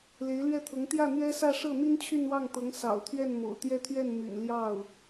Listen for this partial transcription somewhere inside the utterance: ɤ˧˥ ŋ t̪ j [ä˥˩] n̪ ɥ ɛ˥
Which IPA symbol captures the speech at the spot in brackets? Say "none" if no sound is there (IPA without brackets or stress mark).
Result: ä˥˩